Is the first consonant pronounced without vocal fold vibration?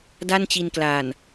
no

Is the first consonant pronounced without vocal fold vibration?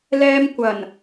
no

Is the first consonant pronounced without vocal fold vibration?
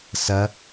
yes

